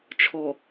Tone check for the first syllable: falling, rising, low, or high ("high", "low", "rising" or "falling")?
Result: low